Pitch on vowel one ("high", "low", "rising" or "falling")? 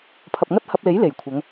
low